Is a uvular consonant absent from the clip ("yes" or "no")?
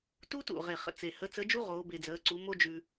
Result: no